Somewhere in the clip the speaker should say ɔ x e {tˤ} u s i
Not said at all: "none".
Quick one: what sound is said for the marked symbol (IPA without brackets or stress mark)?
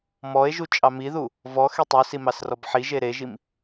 tˤ